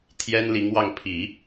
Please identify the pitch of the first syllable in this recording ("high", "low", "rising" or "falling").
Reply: high